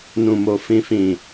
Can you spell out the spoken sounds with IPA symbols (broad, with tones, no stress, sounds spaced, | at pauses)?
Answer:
n ũ˨ m o˨ f ĩ˨ f ĩ˨